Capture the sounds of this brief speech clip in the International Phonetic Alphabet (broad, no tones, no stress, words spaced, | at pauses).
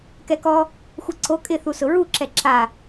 kɛkɔ | xʷɛǀo kʼɪ θusʊɹu ǁɛǁa